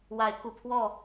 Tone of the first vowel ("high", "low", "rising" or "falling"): rising